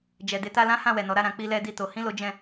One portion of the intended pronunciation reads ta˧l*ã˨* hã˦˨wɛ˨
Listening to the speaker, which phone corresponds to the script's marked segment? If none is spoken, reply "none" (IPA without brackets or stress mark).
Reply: ã˦